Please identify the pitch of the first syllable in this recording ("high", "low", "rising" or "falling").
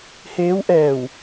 rising